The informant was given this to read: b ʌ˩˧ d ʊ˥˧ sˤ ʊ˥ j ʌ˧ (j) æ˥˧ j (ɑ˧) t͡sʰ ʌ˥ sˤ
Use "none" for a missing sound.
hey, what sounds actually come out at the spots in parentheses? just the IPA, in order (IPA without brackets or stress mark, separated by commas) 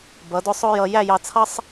j, ɑ˧